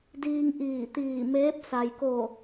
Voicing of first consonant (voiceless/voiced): voiced